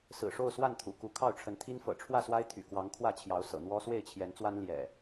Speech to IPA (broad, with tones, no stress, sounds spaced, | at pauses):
s ɹ̩˨˩ ʂ o˥˨ ʊ̯ s w a˥˨ n t̪ʰ ṵ˨˩ k u˨˦ kʰ ɑ˥˨ ʊ̯ ʈ͡ʂʰ ə˨˦ n t̪ʰ i˦ n f ɤ̰˨˩ ʈ͡ʂʰ w ä˥˨ s w a˦ ɪ̯ t̪ʰ y̰˨˩ k w ɑ˨˦ ŋ kʰ w ä˥˨ t͡ɕʰ j ɑ˨˦ ʊ̯ s ɤ̰˨˩ n̪ w ɔ˦ s w e˥˨ ɪ̯ t͡ɕʰ j ɛ˨˦ n t͡s w a˦ n l j ɛ̰˨˩